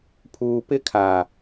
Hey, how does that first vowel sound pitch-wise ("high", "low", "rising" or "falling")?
low